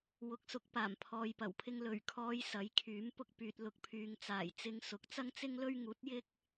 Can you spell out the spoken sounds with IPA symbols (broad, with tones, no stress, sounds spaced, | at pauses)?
w ʊ˨ k̚ s ʊ˨˥ k̚ p aː˨˩ m pʰ ɔː˨ j p ɐ˨˩ w pʰ ɪ˧ ŋ l ɵ˨˩ ɥ kʰ ɔː˨˧ j s ɐ˨˥ j kʰ yː˨˥ m p ʊ˥ k̚ p yː˧ t̚ l ʊ˨ k̚ pʰ yː˨ ŋ t͡s aː˨˩ j t͡s ɪ˧ ŋ s ʊ˨˥ k̚ t͡s ɐ˥ ŋ t͡s ɪ˥ ŋ l ɵ˥ ɥ ŋ uː˨˥ t̚ j ɪ˥ k̚